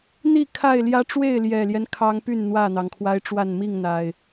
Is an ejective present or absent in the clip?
absent